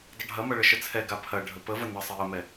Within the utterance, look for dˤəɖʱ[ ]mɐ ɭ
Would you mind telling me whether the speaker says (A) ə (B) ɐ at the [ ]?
B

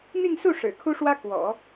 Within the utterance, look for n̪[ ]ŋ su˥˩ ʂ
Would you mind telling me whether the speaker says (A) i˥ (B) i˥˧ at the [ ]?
B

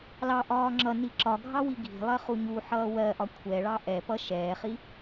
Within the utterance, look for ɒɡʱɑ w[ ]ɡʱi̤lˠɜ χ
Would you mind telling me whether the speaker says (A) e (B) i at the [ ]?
B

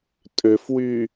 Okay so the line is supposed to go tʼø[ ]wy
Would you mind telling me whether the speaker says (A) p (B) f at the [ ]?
B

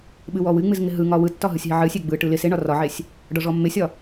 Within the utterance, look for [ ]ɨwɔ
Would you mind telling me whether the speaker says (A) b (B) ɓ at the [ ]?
B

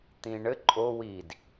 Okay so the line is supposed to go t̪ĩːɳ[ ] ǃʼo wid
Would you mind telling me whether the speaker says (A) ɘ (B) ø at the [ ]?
A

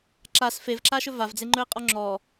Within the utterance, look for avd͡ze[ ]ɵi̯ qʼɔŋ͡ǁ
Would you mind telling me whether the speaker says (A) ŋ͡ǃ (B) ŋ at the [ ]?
A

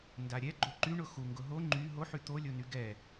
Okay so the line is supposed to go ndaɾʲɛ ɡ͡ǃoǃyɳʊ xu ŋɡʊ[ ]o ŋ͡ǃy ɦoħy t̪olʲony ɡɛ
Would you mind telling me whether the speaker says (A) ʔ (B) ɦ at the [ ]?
B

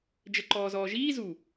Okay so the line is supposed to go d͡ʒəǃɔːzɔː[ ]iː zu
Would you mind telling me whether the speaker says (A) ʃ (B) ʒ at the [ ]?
B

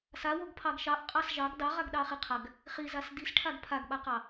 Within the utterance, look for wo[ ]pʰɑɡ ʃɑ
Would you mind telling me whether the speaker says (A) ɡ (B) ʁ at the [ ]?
A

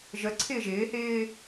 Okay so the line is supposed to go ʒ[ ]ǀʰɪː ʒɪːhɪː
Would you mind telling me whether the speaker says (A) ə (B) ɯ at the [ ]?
A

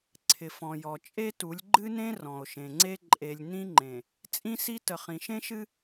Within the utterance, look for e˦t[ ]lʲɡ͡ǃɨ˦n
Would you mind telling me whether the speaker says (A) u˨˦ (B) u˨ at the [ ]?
A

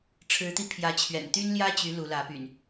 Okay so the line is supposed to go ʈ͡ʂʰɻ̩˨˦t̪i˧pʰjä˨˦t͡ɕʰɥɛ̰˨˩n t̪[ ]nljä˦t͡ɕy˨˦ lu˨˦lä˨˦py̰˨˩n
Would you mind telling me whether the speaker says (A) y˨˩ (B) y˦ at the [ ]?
B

